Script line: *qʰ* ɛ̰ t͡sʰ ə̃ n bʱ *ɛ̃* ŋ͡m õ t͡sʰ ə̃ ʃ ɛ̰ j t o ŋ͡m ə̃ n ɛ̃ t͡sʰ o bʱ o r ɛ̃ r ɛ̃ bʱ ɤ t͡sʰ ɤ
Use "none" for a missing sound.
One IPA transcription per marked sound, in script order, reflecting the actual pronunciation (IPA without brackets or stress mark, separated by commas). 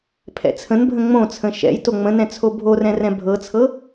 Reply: pʰ, ə̃